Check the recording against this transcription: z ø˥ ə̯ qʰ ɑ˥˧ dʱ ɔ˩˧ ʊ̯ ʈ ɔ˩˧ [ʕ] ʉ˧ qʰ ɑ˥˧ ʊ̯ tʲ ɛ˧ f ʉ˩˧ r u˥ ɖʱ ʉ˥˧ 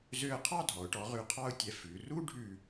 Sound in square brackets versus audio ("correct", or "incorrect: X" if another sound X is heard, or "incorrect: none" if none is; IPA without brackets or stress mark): incorrect: ʁ